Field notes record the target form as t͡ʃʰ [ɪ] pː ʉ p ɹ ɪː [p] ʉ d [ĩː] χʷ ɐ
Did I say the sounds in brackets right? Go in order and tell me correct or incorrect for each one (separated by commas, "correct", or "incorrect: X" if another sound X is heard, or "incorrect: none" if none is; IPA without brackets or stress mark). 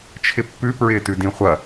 correct, incorrect: t, incorrect: ĩ